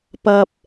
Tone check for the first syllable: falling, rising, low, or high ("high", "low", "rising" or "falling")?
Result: low